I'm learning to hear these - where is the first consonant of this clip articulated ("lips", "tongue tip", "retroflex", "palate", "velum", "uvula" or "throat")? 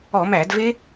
lips